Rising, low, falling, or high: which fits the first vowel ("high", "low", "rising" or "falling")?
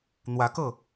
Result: rising